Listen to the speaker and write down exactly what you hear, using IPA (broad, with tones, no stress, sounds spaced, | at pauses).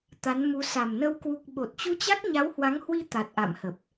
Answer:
t̪ a˨˦ n m u˨˦ s a˨˩ m n ə˧ w k w u˨˩ k̚ ɓ o˨˩ t̚ t͡ɕ u˧ t͡ɕ a˦˥ k̚ ɲ a˨˦ w h w a˨˦ ŋ h w i˧ t̪ a˨˩ t̚ ʔ a̰˧˨ m h ə˨˩ p̚